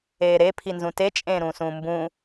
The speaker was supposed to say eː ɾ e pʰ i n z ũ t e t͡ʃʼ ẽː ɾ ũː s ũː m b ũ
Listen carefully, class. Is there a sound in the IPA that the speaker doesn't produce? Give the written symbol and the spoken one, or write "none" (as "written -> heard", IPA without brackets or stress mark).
none